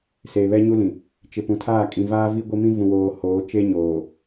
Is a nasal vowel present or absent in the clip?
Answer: present